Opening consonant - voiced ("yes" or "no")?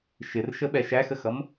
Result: no